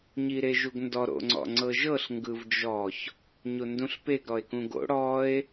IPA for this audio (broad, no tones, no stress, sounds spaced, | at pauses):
ɲ i ɾ e ʒ u ɡ n d ɔ ɾ o̰ ŋ͡ǀ ɔ̰ ŋ͡ǀ ɤ ʒ ɤ ɬ ŋ ɡ ɯ v d͡ʒ ɔ ç | ɲ o n d ũ ɬ p e ɡ ɾ ɔ e̯ k ũ ɡ o̰ ɽ ɔ e̯